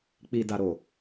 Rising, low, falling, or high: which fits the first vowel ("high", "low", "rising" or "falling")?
low